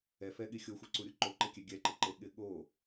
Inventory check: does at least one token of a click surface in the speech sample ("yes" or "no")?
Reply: yes